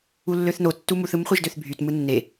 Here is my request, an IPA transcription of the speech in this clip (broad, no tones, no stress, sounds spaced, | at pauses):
u lː ø θ n o tː u m u θ ɯ m χʷ e ʒ d ø θ bʱ y t m ɯ nː e